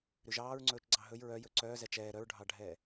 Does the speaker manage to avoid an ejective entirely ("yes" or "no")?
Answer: yes